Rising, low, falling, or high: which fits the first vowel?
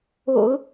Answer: low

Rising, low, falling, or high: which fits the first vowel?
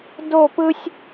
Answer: falling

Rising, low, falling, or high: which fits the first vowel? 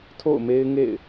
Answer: falling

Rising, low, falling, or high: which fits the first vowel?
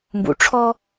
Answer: low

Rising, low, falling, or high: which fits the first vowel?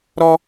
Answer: high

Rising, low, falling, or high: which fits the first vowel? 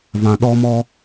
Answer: low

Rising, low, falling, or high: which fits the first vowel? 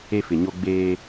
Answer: high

